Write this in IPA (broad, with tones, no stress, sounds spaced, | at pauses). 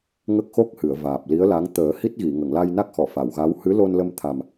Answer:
ŋ ə˦˥ k̚ x o˦˥ k̚ h ɨ˨˩˨ ə̯ v aː˨˩ p̚ l i˧˥ ə̯ l a˧˥ ŋ t̪ əː˨˩˦ h i˦˥ t̚ ɣ i˨˩˨ ŋ ə˨˩˨ ŋ l a˧ j n a˦˥ k̚ x ɔ˨˩˨ f a˨˩˨ w ɣ a˧˥ w h ɨ˧˥ l o˧ n l ə˧ m t̪ʰ a˨˩ m